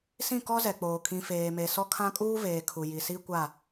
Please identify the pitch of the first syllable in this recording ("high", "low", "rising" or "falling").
falling